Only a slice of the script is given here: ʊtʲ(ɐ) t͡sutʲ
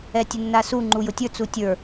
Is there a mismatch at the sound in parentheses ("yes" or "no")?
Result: yes